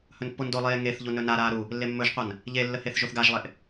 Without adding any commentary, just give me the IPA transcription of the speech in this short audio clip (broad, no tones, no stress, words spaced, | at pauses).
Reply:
hɵnpːondolˠeː ŋeθʎu nɵnaɾaː ɾu | lːemːɵʒqʷan | ʎelːə heθʒoθɡaʒlˠeʔ